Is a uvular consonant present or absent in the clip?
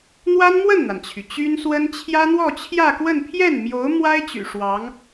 absent